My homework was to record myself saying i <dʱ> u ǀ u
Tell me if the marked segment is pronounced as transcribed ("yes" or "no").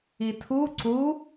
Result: no